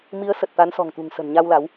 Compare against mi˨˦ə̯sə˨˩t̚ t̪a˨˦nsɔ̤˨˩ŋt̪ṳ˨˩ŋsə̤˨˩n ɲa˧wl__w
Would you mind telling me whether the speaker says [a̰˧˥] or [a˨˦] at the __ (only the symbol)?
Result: a˨˦